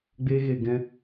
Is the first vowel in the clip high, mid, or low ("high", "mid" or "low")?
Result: mid